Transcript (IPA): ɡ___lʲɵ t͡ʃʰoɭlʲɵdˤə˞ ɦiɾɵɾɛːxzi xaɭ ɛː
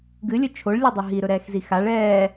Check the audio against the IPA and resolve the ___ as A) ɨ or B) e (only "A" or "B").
A